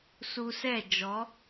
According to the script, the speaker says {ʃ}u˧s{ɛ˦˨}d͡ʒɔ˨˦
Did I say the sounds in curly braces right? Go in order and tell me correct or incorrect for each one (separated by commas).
incorrect, correct